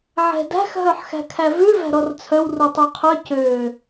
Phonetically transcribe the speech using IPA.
ʕ ɛ̤ d æ̤ x ɦ œ ħ x æ̤ kʰ æ v ʉ v æ̤ ɾ ɔ r t͡sʰ œ w r u tˤ u qʰ œ c ø

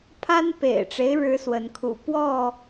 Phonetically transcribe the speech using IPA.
pʰ a˦ n p ḛ˨˩ ɪ̯ ʈ͡ʂ e˦ ɪ̯ ɻ ɻ̩˦ s w ə˨˦ n kʰ ṵ˨˩ p w ɔ˥˨

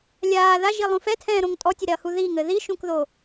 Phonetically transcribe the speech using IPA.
lʲ aː ð a ʒ i lˠ ũ f ɛ tʰ ɛ̃ː ɾ õ ŋ tʼ ɔ tʲ ɘ ɾ ɛ ɐ̯ h u ð i ŋ ɘ ð i ʃ ũ k ð o

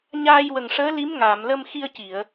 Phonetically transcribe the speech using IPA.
ɲ aː˧ j w ə˨˩ ŋ ʂ əː˧˥ l i˧˥ m ŋ aː˨˩˨ m l ə˧ m x i˧ ə̯ c i˨˩˨ ə̯

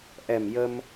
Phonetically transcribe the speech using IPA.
ʔ ɛ˨˩ m j ə˧ m

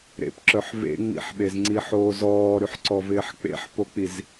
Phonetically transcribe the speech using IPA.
ɾ ḛ p ǁ œ ħ v ḛ ŋ͡m ḭ ħ ɓ e z ŋ͡ǀ i ħ oː z ɔː ɾ y ħ ǀ ɔ v ɪː ħ k͡p ḛ ħ p o k͡p i z

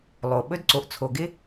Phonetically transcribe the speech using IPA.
lˠ o˨ ɓ ɵ˦ d ǀ o˨ ʔ t͡sʰ o˨ ɡ ɪ˦

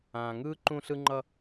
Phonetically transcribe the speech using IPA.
ãː˨ ŋ ɯː˦ ǃ ũ˦ ɬ ɯ˦ ŋ͡ǃ ʌ˦

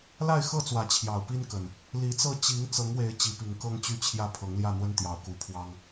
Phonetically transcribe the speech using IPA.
l a˥˨ ɪ̯ x ɤ˥˨ t͡s w ä˨˦ t͡ɕʰ j ɑ˨˩ ʊ̯ p i˦ n k ə˨˩ n | l i˨˦ t͡s ɤ˥˨ t͡ɕ i˨˦ ŋ t͡s ɤ˨˦ ŋ w e˨˦ ɪ̯ t͡ɕ i˨˦ p i˨˩ ŋ k ɤ˦ ŋ t͡ɕ y˥˨ t͡ɕʰ j ä˦ pʰ ɤ˨˦ ŋ l j ä˥˨ n̪ w ə˦ n t̪ j ɑ˨˦ ʊ̯ k u˨˩ pʰ w ɑ˦ ŋ

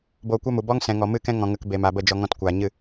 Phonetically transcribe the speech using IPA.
b oː˧ kʷ ɛ˦ m u˨ b ɔ˦ ŋ s ɛ̃˨ ŋ ɔ˨ m ɨ˦˨ k ɛ̃˦ ŋ ɔ̃˨ ŋ ə˧ k b e˨ m a˨ b ə˦˨ d͡ʒ ɔ˧ ŋ ɔ̃˧ t kʷ aː˨ ɲ ɨ˦˨

